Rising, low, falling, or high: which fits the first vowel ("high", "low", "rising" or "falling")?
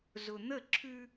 low